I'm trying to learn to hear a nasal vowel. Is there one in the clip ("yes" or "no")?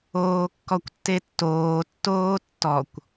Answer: no